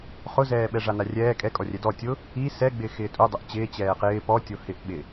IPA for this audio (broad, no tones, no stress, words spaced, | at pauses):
χʊzɛː ɓɛʐanarʲɛː kʼɛ kʼɔrʲɛdɔ tʲʊ | i sɛ ɡ͡bɪːxɪːtʼu dˤʊʔt͡ɕɪː t͡ɕɛːqɪː pɔ tʲohɪʔ ɓɪ